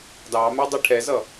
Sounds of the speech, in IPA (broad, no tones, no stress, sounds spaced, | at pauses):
d ɑ m ɛ dˤ e ʈʰ ɛ z ʌ